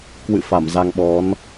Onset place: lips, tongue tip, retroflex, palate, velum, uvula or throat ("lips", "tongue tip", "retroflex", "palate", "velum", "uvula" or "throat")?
velum